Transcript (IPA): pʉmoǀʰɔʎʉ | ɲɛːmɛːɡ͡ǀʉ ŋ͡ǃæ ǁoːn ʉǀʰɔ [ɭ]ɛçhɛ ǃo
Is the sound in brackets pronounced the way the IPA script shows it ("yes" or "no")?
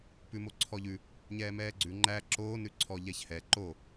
no